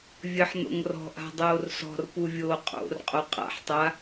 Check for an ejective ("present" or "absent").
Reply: present